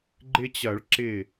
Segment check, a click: present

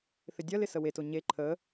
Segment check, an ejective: absent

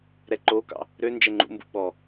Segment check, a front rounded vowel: present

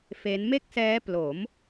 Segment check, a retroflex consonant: absent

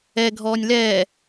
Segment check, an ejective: absent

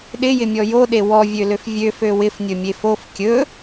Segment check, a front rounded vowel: present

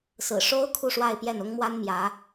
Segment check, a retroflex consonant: present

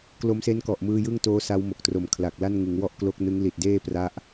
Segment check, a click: absent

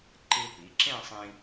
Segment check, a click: present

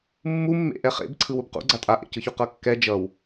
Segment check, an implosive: absent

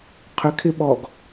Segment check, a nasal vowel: absent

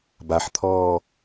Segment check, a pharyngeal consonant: present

